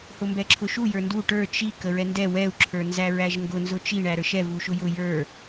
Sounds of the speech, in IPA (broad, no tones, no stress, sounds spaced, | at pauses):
h ʊ m b ɛ ǁʰ ʊ ʃ u j ə˞ n d u ʈ ə˞ t͡ʃ i k ə ɹ ɛ n d ɛ w ɛ u̯ ǁʰ ə˞ n z æ ɹ æ ʒ ŋ ɡ ʊ n z ʊ t͡ʃ i ɳ æ ɾ ə˞ ʃ ɛ v u ʃ ʊ j ʊ j ə˞